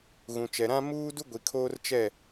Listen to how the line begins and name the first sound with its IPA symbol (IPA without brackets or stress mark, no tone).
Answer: ɣ